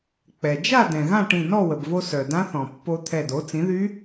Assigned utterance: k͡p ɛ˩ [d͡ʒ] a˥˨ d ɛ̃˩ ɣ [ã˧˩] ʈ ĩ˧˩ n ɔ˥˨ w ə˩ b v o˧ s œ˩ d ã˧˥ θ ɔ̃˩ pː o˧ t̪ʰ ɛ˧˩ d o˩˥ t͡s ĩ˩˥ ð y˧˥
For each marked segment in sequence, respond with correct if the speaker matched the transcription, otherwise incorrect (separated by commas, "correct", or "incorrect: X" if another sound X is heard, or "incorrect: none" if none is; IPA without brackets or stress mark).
correct, incorrect: ã˥˨